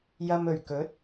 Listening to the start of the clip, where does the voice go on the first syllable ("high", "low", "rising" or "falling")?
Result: low